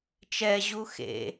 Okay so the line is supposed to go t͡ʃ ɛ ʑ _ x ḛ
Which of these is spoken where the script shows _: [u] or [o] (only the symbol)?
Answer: u